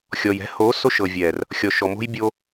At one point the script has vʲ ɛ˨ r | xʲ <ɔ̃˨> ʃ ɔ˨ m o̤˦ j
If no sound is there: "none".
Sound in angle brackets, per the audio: ɔ˨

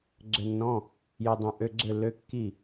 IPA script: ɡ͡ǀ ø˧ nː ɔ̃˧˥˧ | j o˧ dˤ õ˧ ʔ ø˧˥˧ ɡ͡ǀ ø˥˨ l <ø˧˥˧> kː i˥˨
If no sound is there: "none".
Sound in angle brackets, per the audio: ø˧˥˧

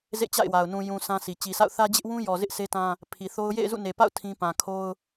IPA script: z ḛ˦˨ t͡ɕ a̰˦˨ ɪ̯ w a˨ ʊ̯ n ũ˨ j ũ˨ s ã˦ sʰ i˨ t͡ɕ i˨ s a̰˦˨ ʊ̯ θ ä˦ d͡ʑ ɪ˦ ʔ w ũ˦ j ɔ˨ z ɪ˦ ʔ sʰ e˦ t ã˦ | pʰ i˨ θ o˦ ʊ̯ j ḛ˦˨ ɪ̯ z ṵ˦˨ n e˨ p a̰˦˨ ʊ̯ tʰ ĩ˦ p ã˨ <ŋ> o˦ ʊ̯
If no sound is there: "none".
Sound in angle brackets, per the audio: kʰ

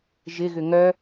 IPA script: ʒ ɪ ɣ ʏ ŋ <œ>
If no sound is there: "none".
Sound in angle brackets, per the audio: œ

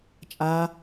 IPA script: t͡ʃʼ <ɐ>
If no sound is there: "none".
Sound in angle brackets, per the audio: a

